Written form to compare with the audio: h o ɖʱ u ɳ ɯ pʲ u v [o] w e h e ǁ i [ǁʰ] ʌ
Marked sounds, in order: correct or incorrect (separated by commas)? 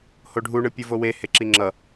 correct, incorrect